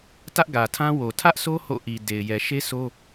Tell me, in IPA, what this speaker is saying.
t ä˦ ʔ ɡ ä˨ tʰ ã˦ w o˨ tʰ ä˦ ʔ sʰ o˦ h o̰˦˨ ʔ i˨ d e˨ ɪ̯ j ɛ˨ ʃ e˦ s o˦

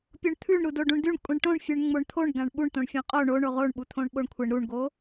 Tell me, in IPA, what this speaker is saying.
pʲ o ɳ t̪ʰ ʉ ɳ ɾ u d o ɖ ũ ɳ d ʉ ɳ kʷʼ ĩ ɳ ʈ õ ɳ fʲ ʉ ɳ ŋ͡m o ɳ t̪ʰ o ɳ ɡ ã ɳ ɓ u ɳ t̪ õ ɳ fʲ õ qʼ o ɳ o ɳ o ʁ o ɳ ɓ u t̪ʰ õ ɳ ɓ o ɳ kʷʰ ɪ ɳ ɾ u ɳ ɡ o

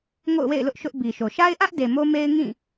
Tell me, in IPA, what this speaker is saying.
ŋ o̰˦˨ ʊ̯ w ḛ˦˨ ɪ̯ l ʊ˦ ʔ ʃ ʊ˦ ʔ b i˨ ʃ o˨ ʃ a˦ ɪ̯ ʔ ä˦ ʔ d e˨ m o˦ m e˦ ɪ̯ ŋ ĩ˦˨

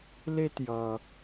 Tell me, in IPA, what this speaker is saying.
l e˥ t j ʌ˩

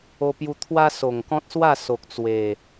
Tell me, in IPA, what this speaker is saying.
o˧ p j u˧ t̪ʰ w a˦ s o˨˩ ŋ k ɔ̃˦ t̚ s w a˥˧ s o˨ k̚ t͡s w e˨˩

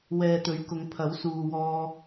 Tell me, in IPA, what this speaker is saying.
w ɛː˨ t̪ ɵ˨˥ ɥ k ʊ˨˧ ŋ pʰ ɐ˨˥ w s uː˨ w ɔː˧

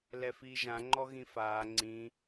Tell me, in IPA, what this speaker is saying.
l ɛ f iː ʒ ã ŋ͡ǃ ɔ ɣ ĩ f aː ŋ͡ǀ ĩ

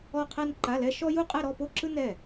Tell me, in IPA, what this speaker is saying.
ɔ˥˧ qʰ ɛ˥ n ǃ a˧˥˧ l ɛ˥ ʃ ɔ˥ j u˥˧ qʼ ɛ˥˧ ɾ ɔ˥˧ p o˥˩ ǁ ɯ˥ n ɛ˥˩

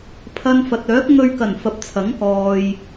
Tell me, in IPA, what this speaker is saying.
pʰ ɐ˥ n f ɐ˧ t̚ œː˨˥ k̚ ŋ ɵ˧ ɥ k ɐ˨˩ n f ɐ˨˥ p̚ t͡sʰ ɐ˨˥ ŋ k ɔː˨ j

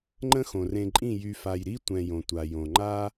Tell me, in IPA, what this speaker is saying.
ŋ͡ǃ ə̃˦ x õ˨ r ẽ˧ ǃʼ ĩ˦˨ j y˨ f a˨ j ɾ i˦ tʷ ɛ̃˧ j õ˨ tʷ a˨ j õ˨ ŋ͡ǃ a˦

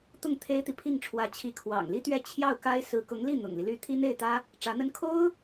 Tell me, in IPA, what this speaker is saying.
t̪ ʊ˥˩ ŋ t̪ʰ e˥ ɪ̯ t̪ i˨ pʰ i˥˩ ŋ ʈ͡ʂʰ w ä˧˥ t͡ɕʰ i˧˥ kʰ w ɑ̰˨˩ ŋ l i˥ t̪ ɥ ɛ˥˧ t͡ɕʰ j ɑ˥˩ ʊ̯ k a˥ ɪ̯ s ɹ̩˧˥ k ʊ˧˥ ŋ l i˥˩ n̪ ʊ̰˨˩ ŋ l i˦ l y˥ t̪ʰ i˥ n̪ e˥˩ ɪ̯ t̪ ä˥ | ʈ͡ʂ ä˧˥ n̪ ə˥ n kʰ o˥ ʊ̯

